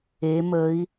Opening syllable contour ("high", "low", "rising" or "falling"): rising